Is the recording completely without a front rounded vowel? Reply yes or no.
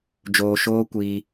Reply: yes